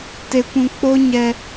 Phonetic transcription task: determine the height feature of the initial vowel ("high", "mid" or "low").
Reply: mid